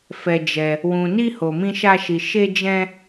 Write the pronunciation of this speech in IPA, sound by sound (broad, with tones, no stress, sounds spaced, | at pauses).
f ɛ˧ d͡ʒ ɛ˧ | w ũ˧ n i˦ h o˧ m ĩ˦ ʃ a˦ ʃ i˧ ʃ e˦ d͡ʒ ɛ̃˦